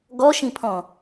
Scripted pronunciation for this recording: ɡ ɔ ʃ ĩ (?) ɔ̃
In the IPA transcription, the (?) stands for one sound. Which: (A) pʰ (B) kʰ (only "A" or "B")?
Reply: A